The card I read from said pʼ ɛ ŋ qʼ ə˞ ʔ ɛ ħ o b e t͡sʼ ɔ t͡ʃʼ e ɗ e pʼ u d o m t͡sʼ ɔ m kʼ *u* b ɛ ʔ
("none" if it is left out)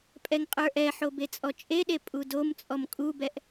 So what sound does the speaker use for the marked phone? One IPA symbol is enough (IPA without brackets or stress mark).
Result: u